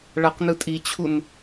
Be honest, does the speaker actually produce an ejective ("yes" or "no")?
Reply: yes